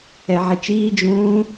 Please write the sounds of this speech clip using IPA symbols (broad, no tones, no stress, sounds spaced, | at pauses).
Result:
ɛ ʕ e t͡ʃ iː d͡ʒ ũː